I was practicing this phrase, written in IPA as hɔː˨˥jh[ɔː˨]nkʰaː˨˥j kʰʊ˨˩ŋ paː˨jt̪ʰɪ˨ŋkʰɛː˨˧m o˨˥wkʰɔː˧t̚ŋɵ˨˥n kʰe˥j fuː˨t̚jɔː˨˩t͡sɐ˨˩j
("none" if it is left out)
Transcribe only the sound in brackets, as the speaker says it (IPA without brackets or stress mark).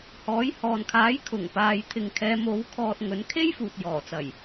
ɔː˨